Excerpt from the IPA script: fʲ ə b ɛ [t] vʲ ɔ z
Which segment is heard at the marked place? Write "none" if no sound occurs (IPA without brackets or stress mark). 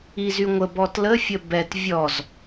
t